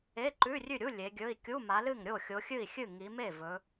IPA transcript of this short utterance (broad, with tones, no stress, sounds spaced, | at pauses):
e˧˥˧ ǃ ʉ˧˥˧ rʲ ʉ˥˩ ɾʲ u˧˥˧ lʲ e˨˦ ɡʲ ɵ˧˥˧ i̯ kʲ u˧˥˧ m a˨˦ l ɨ˥˩ ŋ ɾʲ o˥˩ xʲ o˨˦ xʲ ɨ˥˩ i̯ xʲ ɨ˥˩ ŋ i˨˦ m e˥˩ v ɵ˨˦